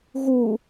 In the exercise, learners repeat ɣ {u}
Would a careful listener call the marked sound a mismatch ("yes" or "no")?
no